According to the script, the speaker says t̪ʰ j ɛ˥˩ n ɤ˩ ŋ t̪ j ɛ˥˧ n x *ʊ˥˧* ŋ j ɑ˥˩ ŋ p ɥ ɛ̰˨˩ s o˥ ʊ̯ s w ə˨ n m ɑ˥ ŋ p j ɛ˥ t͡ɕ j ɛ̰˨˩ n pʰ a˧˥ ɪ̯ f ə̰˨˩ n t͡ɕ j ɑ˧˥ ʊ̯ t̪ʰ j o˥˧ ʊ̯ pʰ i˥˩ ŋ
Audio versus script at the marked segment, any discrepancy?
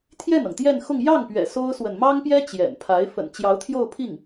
no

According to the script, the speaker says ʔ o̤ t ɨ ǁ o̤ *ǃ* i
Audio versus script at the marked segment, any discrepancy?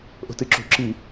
yes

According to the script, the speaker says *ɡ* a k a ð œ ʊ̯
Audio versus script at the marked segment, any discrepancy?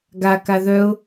no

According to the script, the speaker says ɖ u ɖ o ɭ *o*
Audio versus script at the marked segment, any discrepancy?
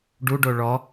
yes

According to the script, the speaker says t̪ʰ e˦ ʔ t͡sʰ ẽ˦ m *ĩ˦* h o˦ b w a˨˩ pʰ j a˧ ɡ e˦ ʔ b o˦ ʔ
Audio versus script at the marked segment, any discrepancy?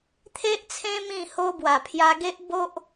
yes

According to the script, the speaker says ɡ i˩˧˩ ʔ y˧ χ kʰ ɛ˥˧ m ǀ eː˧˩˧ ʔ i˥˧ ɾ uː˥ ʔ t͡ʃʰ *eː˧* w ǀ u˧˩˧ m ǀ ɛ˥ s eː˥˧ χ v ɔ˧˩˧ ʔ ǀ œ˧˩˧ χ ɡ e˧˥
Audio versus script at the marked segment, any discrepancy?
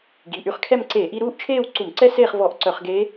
yes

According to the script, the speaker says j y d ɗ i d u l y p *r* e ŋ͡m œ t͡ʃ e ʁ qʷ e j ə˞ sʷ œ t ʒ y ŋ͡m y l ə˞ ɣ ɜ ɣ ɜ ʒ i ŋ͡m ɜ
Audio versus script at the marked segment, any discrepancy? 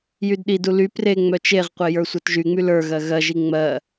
no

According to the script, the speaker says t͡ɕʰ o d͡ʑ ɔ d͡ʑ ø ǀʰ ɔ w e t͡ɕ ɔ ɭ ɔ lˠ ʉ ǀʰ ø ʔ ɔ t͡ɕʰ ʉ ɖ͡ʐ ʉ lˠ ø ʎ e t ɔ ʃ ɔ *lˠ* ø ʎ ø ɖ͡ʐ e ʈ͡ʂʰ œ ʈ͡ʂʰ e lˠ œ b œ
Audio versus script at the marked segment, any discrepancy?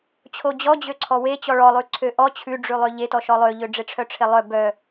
no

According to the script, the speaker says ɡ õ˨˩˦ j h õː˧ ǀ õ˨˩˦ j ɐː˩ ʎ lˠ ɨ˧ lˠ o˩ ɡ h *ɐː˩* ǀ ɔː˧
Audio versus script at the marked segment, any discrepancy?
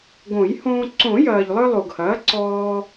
yes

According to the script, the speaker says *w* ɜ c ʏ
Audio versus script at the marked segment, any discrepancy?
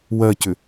no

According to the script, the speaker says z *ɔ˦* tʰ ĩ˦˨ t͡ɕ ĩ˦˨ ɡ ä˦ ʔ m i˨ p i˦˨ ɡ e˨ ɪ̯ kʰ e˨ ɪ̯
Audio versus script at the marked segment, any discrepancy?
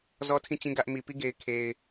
no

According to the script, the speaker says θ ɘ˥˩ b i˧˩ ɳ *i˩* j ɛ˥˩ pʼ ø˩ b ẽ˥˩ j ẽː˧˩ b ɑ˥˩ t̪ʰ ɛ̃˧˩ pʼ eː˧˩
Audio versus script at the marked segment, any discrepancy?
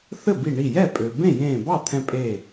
yes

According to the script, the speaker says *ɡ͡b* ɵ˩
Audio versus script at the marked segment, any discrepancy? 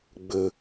no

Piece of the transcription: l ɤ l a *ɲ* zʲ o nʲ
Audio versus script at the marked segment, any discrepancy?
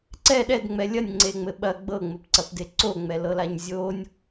no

